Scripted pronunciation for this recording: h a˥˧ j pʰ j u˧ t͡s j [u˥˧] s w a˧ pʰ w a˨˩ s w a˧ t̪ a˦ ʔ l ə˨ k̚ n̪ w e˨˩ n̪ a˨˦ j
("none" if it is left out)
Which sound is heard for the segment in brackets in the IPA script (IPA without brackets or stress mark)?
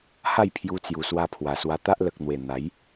u˨˩